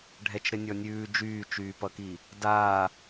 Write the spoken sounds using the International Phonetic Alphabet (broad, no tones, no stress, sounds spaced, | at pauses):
ɖʱ ɛ t͡ʃ ɾ ɘ nʲ ɔ nʲ ʉː d͡ʒ yː t͡ʃ yː p ʌ k i | d aː